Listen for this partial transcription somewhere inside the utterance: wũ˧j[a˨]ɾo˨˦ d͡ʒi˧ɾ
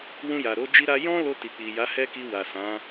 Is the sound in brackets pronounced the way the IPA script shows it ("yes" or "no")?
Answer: yes